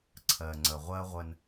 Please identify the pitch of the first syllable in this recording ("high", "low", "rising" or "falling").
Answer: low